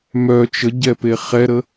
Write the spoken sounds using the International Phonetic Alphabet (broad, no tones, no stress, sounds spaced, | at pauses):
m œ t͡ʃ ə ɟ ɛ p e χ ɛ ɾ ə